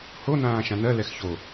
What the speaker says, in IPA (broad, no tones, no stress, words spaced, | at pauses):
ho nãːʃãnɜ lɛxço